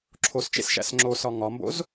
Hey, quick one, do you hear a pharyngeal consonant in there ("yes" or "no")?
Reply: no